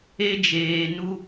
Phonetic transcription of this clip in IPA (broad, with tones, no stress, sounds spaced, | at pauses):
e˦ d͡ʒ eː˧ n u˦